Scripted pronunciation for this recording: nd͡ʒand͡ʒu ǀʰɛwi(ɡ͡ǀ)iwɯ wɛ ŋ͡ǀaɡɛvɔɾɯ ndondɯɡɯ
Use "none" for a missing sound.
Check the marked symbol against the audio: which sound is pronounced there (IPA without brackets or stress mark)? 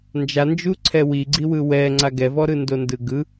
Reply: ɡ͡ǀ